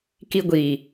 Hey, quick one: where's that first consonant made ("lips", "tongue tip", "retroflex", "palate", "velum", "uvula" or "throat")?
velum